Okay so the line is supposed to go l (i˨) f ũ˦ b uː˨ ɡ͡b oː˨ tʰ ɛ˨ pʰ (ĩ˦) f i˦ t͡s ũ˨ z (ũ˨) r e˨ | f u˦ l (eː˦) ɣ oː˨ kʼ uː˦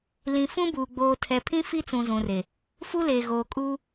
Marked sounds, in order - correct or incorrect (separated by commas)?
incorrect, correct, correct, incorrect